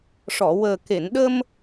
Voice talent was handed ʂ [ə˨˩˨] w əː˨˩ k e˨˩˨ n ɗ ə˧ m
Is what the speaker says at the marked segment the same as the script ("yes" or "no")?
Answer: no